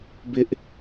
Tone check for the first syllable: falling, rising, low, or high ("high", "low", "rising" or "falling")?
high